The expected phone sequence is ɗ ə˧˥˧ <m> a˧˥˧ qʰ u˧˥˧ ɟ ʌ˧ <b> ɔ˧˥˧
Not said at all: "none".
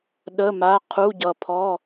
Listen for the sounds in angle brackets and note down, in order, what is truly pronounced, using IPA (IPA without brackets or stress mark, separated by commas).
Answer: m, pʰ